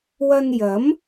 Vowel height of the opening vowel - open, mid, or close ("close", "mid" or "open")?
open